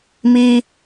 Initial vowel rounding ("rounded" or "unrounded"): unrounded